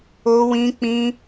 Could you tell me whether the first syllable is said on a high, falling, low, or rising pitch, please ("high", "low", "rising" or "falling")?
high